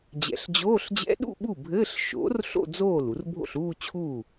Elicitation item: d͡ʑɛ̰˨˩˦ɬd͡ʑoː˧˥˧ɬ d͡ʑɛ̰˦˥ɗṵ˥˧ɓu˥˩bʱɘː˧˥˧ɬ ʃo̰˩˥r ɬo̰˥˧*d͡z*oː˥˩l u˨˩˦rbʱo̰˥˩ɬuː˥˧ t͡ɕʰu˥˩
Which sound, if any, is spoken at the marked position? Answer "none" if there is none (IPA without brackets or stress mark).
d͡z